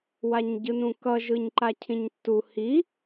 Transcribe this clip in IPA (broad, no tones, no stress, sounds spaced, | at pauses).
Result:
w a ɲ ɟ ɯ n ũ k ʌ ʒ ɯ ɲ ǃ a cʰ ĩ ɲ tː u h i